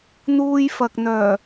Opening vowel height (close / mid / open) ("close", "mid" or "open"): close